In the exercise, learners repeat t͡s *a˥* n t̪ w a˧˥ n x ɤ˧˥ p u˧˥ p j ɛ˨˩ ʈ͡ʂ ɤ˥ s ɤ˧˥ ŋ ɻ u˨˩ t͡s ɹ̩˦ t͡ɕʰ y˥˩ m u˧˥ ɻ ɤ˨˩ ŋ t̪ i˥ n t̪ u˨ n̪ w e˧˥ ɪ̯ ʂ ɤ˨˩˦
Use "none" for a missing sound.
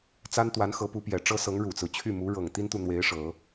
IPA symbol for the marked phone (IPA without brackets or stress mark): a˥